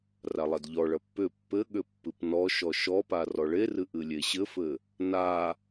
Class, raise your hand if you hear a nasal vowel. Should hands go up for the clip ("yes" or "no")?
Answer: no